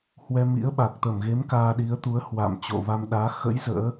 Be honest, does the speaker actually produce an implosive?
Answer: yes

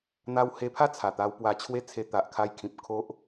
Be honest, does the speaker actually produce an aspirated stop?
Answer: yes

